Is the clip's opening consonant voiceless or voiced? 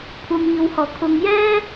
voiceless